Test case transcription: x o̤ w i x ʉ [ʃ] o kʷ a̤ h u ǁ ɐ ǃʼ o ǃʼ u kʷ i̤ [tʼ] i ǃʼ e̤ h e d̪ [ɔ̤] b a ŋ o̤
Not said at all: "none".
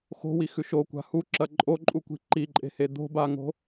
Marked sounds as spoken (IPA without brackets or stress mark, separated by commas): ʃ, ǃ, o̤